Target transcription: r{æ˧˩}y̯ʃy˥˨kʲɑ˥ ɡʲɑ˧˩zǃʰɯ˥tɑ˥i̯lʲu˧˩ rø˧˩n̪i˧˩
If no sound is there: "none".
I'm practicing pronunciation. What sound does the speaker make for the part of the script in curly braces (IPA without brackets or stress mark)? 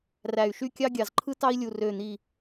æ˧˩